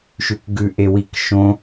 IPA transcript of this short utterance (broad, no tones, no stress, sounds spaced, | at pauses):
ʃ ʉ k ɡ ʉ ʔ e w i k ʃ õ